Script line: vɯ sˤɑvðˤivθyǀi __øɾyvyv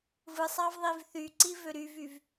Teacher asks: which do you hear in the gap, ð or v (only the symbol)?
v